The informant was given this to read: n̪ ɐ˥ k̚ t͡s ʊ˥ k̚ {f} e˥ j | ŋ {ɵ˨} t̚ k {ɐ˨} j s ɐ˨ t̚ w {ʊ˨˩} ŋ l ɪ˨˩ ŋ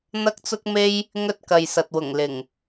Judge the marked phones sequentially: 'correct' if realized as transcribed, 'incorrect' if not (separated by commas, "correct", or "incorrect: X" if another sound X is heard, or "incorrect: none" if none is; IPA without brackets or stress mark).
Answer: incorrect: m, incorrect: ɵ˥, correct, correct